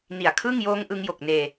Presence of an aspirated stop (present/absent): present